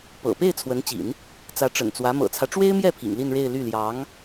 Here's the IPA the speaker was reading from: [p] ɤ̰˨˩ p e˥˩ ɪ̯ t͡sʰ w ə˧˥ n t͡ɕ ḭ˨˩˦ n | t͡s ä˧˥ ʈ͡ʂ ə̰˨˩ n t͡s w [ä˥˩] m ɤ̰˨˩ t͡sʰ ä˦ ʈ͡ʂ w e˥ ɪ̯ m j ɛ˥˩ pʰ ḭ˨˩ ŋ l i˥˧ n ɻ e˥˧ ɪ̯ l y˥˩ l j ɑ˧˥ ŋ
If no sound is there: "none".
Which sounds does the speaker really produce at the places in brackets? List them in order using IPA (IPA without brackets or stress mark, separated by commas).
p, ä˧˥